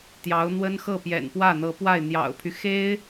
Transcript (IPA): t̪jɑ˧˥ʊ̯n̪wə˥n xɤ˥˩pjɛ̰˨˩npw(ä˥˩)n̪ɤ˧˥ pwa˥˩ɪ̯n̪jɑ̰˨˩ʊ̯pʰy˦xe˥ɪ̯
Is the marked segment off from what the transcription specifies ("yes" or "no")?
no